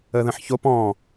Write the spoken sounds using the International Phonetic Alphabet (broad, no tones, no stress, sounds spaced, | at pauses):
ə ð ə̃ ħ ç o p ɔ̃